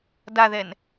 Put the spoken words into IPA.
d a ð ɛ n

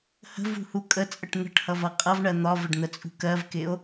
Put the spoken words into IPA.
h ə̤ v ṳ h u kʼ ə t͡sʼ ə ʈ n̪ ə̤ ʈ h ʌ v ʌ qʼ ʌ v ɳ ɜ n̪ ɒ v ə ɖ n̪ ə t͡sʼ ṳ k ɜ v k ɪ o̯

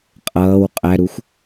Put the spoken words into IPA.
qʼ ʌː w qʼ æ ɾ u xʷ

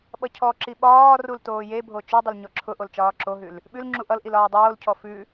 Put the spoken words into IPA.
ɓ ʌ cʰ ɔ ǁ i ɓ ɒː r u l t oː j e bʱ o t͡ʃ ʉ dˤ ʊ l ɲ ɔ ǁʰ ʊ ʔ o l t͡ʃ ɒː ǁ o ɦ ʉ l | ɓ ʉ l ŋ͡ǁ u ʔ ʌ l ʔ i l ɒː dˤ oː l cʰ ɔ f ʉ

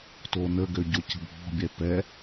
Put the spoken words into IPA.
t o n ə ɡ ø ɟ o c ə̤ bʱ ɔ̤ bʲ ɛ p ɛ

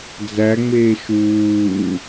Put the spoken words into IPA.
d͡z æ ŋ͡m eː ʃ uː

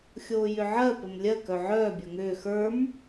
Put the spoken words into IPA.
xʲ oː j ʏ ʕ ɜ p ə m lʲ ɜ k œ ʕ œː bʲ ə˞ ŋ ʏː x ə˞ m

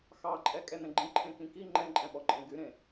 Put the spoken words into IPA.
x ɑ ǃʼ ɛ kʼ ɛ n ɛ̃ ɡ͡ǃ ĩ ǃʰ ẽ k ĩ k i ŋ͡ǃ ɛ̃ ǃʼ ɛ̃ ɓ ɔ ǃʼ ẽ ɡ y ɾ ẽ

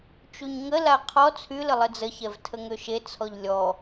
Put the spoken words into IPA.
t͡ʃ u ɲ ŋ ə l a qʰ ɔ t͡sʰ y l ə lˠ ə d͡z ə ç ɛ v tʰ ə ŋ ø ʃ e t͡sʰ ɔ ʎ lʲ ɔ

